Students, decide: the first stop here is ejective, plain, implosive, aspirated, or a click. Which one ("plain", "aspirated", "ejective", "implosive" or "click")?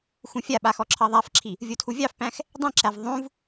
implosive